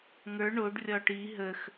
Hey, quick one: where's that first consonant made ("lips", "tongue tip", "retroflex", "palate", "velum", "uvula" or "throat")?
velum